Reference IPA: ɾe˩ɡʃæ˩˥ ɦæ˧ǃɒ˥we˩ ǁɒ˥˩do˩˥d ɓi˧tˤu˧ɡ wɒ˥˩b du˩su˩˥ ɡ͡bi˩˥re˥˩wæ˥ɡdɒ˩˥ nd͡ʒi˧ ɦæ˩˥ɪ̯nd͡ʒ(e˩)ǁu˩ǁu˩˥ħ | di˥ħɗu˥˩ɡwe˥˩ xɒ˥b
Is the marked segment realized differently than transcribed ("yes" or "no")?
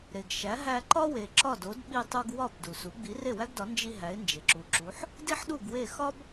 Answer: no